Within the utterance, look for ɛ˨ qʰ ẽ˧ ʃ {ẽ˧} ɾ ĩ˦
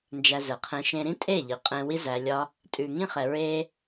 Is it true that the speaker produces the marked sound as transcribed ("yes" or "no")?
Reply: yes